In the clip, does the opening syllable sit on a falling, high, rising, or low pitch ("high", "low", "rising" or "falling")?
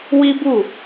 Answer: high